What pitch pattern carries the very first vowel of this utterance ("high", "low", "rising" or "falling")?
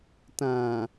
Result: low